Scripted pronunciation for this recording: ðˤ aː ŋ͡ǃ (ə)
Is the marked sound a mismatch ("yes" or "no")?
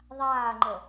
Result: no